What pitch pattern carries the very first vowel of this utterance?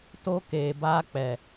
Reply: high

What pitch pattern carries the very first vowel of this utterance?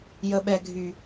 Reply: low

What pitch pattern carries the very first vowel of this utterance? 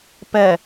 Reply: low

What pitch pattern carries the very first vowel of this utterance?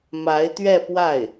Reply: rising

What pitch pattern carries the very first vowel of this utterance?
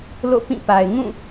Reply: falling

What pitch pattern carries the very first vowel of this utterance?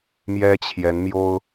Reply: high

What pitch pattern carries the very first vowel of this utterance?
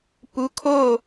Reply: rising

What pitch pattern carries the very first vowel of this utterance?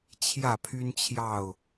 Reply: falling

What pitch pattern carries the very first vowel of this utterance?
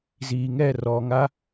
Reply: low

